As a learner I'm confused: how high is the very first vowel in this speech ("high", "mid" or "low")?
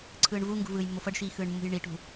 high